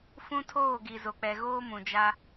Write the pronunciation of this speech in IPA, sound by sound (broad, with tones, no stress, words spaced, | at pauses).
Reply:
fũ˦tʰoː˦˨ ɡi˨zo˨k͡pɛ˨ɣoː˦ mũ˨d͡ʒa˦